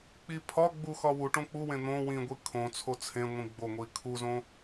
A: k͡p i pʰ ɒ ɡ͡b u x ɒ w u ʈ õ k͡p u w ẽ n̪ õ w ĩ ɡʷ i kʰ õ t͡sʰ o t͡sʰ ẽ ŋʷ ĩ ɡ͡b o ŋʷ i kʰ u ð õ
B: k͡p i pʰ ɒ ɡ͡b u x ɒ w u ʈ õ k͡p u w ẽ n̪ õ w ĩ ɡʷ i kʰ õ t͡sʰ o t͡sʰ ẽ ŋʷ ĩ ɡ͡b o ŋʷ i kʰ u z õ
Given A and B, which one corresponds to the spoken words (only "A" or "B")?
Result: B